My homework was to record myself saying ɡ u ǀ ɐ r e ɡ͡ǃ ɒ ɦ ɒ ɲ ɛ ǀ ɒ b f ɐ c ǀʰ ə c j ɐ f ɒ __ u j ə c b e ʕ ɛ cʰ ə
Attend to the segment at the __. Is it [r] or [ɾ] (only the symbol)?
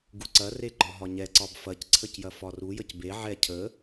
r